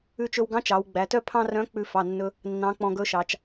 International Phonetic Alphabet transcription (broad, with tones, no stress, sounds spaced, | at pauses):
ʉ˧ t͡ʃ ɵ˧ w ɡ ɑ̃˧˥ t͡ʃ ɑ˩˧ w ɡ͡b æ˩˧ t œ˥ pʰ ɑ̃˥ r œ̃˧˥ k͡p ʉ˧ f ɑ˩˧˩ nː ɵ˧ | nː ɑ̃˧˥ k͡p ɔ̃˧ ɡ ɵ˧˥ ʃ ɑ˩˧ t͡ʃ